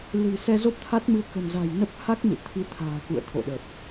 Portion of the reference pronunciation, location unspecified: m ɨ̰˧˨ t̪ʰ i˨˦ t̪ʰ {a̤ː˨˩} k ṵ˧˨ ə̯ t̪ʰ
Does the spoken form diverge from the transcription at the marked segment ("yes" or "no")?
no